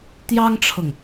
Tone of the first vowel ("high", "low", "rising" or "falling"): high